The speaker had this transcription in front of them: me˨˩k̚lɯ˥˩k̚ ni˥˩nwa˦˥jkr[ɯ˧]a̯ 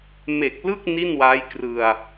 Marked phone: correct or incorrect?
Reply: correct